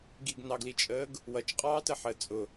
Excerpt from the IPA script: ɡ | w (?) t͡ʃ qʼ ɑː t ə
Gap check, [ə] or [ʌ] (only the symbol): ʌ